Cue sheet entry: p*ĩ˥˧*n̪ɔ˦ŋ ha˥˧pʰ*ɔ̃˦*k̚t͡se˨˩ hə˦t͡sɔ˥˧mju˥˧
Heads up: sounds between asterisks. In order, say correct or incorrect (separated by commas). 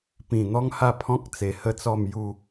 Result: incorrect, correct